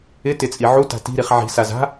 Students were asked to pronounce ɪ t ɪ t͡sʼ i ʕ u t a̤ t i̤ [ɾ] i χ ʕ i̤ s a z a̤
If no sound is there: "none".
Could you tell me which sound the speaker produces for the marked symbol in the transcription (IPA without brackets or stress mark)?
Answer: ɾ